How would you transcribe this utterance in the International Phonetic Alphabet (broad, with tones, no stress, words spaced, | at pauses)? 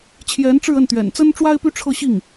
t͡ɕʰjɛ˧˥nʈ͡ʂɻ̩˥˧ə˥˩nt̪ɥɛ̰˨˩n t͡sə˥nʈ͡ʂwa˥ɪ̯ py˥ʈ͡ʂʰɤ˥˧ɕi˥˩ŋ